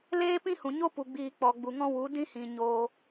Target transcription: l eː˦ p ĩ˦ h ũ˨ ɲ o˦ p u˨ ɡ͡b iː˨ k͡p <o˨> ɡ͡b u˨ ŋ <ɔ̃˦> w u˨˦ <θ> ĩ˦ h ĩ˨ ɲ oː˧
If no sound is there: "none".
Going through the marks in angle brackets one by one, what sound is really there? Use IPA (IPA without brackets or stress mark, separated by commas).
ɔ˨, ɔ̃˦, d